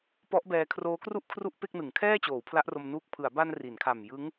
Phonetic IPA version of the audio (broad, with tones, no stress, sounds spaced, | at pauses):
p ɔ˦˥ ʔ b ɛː˧ kʰ r oː˦˥ k r u˥˩ ʔ kʰ r u˥˩ ʔ p e˥˩ k̚ n ɯ˩˦ ŋ kʰ ɛː˥˩ t͡ɕ oː˩˦ w pʰ l a˦˥ ʔ r o˧ m n uː˦˥ k̚ pʰ ɯ˩˦ a̯ b a˧ n r i˩˦ n kʰ a˨˩ m j ɯ˦˥ ŋ